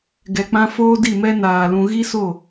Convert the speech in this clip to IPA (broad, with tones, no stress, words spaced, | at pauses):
ɡɛ˨k͡pã˦ foː˦di˦˨mɛ˦ naː˨lũ˧ ɣi˦so˦˨